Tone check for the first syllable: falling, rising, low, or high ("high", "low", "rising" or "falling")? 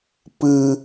low